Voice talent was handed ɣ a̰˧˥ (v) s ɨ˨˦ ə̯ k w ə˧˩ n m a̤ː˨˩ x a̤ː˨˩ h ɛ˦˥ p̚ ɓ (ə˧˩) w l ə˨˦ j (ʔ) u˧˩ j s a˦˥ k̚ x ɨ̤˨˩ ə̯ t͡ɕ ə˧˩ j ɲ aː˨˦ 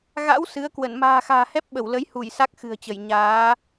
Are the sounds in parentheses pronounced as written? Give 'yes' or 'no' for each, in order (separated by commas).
no, yes, no